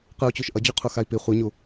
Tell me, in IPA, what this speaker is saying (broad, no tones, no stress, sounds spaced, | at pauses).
q ɯ u̯ t͡ɕ u ʃ ʔ ʌ d͡ʑ u qʰ u x a i̯ p i χʷ ɯ ɲ u